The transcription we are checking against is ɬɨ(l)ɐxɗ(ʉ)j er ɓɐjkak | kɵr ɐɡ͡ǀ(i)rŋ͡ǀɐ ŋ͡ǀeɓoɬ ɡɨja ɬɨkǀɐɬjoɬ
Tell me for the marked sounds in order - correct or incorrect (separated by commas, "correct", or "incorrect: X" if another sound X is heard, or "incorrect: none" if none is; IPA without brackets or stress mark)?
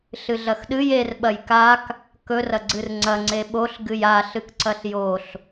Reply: incorrect: ɮ, incorrect: ɨ, incorrect: ɨ